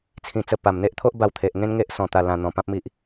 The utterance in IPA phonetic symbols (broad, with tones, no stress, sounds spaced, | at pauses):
t͡sʰ ĩ˧ t͡s ə˧ p a˨˩ m n̪ e˦ ʔ t̪ʰ o˦ ʔ b a˧ w t̪ʰ e˨ ʔ ŋ ẽ˦ n ŋ e˦ ʔ s ɔ̃˧ t̪ a˧ l ã˧ n̪ ɔ̃˧ p ã˦ p̚ m i˦ ʔ